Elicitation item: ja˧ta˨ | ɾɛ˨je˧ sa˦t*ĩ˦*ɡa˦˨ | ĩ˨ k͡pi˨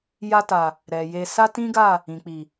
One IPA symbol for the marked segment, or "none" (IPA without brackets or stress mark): ĩ˦